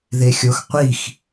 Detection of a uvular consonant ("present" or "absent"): present